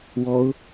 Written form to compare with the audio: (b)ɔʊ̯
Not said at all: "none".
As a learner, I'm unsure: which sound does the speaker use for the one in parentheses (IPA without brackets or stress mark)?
w